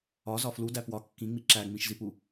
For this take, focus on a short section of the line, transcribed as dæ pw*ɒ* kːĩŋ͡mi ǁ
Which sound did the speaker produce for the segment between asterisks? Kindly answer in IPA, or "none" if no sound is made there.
ɒ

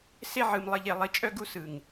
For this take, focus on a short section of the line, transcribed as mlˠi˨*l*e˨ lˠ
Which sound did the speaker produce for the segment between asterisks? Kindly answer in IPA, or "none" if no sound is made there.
ʎ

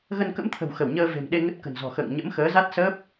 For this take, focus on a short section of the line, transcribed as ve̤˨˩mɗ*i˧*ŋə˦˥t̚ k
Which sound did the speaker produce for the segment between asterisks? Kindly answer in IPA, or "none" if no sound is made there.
e˧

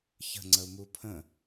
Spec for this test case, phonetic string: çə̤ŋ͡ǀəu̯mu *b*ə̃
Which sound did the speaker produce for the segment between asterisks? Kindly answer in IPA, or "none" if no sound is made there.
pʰ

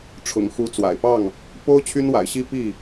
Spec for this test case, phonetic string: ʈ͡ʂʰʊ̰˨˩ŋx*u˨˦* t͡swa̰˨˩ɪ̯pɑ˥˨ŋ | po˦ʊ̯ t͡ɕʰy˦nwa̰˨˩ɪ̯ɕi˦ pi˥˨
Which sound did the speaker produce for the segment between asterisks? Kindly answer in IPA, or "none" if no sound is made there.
u˨˦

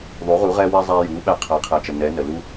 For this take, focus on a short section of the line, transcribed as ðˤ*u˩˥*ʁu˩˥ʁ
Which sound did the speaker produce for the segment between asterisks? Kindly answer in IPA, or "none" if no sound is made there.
u˩˥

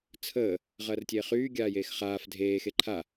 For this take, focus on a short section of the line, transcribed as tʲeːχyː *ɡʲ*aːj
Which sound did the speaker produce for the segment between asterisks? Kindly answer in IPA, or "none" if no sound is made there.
ɡʲ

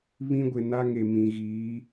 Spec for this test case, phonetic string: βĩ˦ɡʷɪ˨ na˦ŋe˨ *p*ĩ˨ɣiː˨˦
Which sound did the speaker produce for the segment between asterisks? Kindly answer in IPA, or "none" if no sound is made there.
m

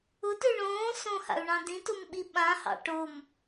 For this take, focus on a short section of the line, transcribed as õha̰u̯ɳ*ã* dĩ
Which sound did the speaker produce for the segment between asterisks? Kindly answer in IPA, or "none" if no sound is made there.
ɑ̃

